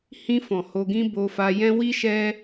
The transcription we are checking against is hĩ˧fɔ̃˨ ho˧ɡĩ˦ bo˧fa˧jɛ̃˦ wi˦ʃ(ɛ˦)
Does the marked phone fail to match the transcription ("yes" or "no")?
no